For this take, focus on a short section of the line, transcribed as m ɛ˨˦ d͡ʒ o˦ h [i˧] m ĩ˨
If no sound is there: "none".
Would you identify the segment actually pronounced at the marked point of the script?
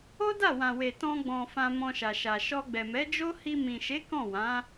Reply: i˧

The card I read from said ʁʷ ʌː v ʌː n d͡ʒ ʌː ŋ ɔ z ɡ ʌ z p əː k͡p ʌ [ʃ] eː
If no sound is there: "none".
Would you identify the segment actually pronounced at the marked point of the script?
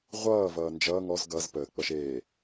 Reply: ʃ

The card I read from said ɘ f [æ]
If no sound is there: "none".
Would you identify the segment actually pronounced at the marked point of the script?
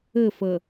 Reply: ə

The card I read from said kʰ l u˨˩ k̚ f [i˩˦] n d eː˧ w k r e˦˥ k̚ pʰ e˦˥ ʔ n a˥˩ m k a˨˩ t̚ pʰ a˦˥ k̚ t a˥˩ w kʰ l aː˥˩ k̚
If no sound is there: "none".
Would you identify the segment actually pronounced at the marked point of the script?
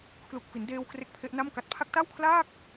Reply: i˩˦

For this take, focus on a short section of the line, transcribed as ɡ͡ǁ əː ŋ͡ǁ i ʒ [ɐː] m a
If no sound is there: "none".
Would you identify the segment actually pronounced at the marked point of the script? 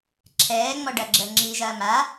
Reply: ɐː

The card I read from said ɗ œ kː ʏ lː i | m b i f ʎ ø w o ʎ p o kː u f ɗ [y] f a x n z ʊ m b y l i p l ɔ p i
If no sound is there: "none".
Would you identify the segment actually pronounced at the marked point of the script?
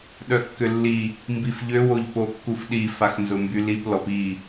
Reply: i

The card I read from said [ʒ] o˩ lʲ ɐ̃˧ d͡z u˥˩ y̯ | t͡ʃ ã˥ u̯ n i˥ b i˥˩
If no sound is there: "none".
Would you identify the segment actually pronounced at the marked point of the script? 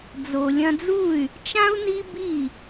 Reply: d͡z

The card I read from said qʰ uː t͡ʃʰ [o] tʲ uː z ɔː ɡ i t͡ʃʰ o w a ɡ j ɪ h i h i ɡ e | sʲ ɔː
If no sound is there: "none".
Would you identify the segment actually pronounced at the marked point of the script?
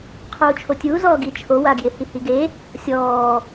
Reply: o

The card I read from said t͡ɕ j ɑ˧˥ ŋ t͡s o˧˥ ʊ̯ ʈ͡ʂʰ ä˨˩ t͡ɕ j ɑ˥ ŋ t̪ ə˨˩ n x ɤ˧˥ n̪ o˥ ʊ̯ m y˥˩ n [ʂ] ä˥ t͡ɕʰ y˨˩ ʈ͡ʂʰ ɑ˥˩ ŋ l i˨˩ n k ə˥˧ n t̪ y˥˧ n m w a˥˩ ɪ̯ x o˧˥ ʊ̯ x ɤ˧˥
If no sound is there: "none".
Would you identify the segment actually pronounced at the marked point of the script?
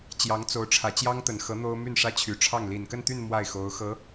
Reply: ʂ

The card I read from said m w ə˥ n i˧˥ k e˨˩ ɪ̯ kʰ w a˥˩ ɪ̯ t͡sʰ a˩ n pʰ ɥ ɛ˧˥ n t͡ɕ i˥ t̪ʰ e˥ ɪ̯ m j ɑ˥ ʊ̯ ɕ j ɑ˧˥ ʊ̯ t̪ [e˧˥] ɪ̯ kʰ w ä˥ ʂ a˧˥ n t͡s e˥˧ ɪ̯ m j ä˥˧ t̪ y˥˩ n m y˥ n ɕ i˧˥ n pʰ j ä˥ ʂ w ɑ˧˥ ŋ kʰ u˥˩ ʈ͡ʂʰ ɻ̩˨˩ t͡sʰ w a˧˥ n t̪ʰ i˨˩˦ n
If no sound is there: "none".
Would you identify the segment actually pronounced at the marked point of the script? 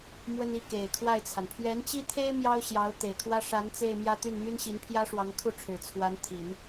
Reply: e˨˩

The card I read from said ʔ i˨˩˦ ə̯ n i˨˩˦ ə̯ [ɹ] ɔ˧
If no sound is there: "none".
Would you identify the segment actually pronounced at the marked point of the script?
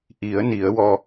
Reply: w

